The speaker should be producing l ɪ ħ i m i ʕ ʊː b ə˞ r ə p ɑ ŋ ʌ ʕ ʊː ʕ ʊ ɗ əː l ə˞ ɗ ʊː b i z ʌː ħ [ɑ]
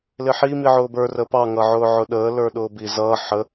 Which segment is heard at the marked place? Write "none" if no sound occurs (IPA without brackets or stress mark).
ə